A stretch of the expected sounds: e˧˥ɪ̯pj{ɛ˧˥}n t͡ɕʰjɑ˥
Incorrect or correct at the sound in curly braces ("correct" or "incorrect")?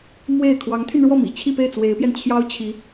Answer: incorrect